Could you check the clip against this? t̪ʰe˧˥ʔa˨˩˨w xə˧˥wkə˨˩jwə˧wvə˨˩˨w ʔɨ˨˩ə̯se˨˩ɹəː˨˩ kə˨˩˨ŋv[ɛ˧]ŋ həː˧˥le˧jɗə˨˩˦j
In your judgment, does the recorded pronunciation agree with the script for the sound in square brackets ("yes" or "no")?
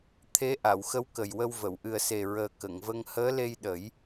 no